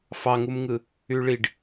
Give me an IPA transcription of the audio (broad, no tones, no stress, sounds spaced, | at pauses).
f ɑ ŋ u m ŋ ɯ | y ɭ i ɖ